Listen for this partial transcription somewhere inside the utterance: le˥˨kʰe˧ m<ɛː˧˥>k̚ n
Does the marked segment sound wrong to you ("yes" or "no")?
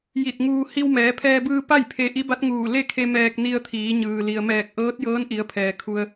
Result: yes